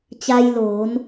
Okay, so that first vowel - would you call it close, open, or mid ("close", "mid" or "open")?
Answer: open